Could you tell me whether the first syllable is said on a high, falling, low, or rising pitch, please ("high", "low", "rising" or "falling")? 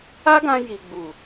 high